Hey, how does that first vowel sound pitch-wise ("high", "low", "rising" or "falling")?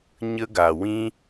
high